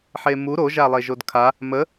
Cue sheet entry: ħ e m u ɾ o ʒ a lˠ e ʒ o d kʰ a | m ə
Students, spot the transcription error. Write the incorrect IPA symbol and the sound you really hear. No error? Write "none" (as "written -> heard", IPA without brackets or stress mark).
none